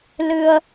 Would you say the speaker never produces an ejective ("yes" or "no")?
yes